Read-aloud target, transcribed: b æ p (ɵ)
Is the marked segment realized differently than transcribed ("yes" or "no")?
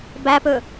no